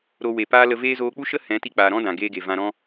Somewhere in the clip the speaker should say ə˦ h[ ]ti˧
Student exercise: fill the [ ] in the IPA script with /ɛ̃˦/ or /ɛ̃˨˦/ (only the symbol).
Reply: ɛ̃˨˦